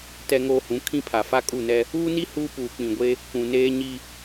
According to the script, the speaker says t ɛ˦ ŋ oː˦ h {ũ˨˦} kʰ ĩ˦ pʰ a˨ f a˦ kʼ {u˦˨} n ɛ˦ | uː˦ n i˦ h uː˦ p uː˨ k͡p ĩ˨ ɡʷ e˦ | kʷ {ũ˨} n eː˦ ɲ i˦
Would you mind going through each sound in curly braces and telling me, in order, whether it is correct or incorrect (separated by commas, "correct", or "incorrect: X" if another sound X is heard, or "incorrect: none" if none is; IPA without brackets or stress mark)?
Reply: correct, correct, correct